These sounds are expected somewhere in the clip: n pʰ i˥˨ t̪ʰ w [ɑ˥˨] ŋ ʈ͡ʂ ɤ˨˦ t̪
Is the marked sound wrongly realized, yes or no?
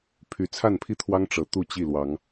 yes